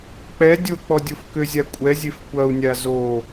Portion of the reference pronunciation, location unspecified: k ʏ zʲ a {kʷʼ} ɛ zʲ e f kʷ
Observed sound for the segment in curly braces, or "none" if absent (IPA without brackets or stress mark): kʷʼ